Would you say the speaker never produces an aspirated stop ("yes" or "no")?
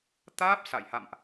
yes